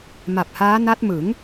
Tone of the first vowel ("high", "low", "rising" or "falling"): low